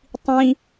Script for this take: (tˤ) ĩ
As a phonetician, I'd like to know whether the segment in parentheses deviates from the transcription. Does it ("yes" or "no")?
no